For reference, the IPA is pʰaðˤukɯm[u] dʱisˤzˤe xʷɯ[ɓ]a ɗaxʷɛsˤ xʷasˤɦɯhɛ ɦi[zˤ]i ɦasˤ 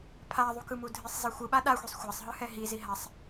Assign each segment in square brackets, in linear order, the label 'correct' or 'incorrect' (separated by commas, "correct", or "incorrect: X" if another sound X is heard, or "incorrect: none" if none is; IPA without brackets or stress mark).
correct, correct, incorrect: z